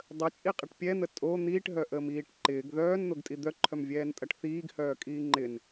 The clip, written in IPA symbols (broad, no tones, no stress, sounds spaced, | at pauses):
dˤ ə t͡ʃʼ i qʼ ɪ ʈ pʲ ɛ n̪ ə tʼ o n̪ iː ʈ ɦ œ ʔ əː m iː ʈ ǃ ɪː ɡ ð œː n n̪ o ɡ tʼ i d̪ œ ǃʰ œ m vʲ ɛː n tʼ ɐ ʈ θ iː ɡ h œː kʼ iː ŋ͡ǃ ɪ n